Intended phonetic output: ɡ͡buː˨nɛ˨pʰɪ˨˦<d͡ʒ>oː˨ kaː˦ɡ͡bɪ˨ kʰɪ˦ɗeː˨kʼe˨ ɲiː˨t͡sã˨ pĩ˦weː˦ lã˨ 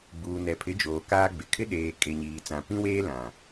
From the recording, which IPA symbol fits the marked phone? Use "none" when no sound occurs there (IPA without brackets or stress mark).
d͡ʒ